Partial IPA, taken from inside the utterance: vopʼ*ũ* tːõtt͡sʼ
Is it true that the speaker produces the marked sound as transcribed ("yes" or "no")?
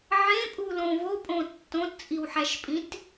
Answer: no